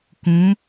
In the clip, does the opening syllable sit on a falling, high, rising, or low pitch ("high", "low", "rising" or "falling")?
rising